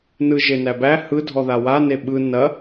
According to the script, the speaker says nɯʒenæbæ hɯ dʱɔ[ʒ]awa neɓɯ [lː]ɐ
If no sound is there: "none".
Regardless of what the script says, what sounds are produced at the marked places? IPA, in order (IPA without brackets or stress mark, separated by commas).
ð, n